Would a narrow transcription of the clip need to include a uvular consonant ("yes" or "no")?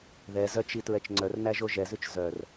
no